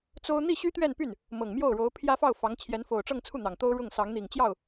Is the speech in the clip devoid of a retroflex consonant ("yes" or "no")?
no